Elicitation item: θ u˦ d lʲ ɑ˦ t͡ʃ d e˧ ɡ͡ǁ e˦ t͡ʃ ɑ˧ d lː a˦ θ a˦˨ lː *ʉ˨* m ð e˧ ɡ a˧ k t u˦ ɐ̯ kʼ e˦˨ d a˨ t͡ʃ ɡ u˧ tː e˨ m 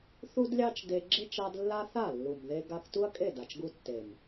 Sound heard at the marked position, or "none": u˨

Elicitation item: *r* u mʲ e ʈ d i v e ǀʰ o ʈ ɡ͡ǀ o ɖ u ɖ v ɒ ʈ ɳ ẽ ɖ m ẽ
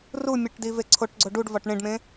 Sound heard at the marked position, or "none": r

